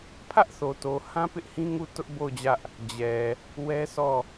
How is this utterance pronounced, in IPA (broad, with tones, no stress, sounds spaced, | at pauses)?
pʰ ä˦ ʔ θ o˨ t o˨ h ã˦ p ɪ˦ ʔ h ĩ˦ ŋ u˦˨ t ʊ˦ ʔ b o˦˨ ʊ̯ d͡ʑ ä˦ ʔ | d͡ʑ ɛ˨ | w ɛ˦ s ɔ˦˨